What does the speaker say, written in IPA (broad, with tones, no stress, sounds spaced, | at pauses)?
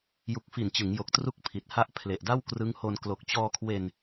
j u˨˩ k̚ f i˨˩ n t͡ɕ ɯ˩˦ ŋ j o˨˩ k̚ t r u˦˥ k̚ pʰ i˨˩ t̚ h a˦˥ ʔ pʰ l e˨˩ ʔ d a˥˩ w k r ɯ˦˥ ŋ h o˧ n k l o˨˩ k̚ t͡ɕ ɔː˧ kʰ w e˧ n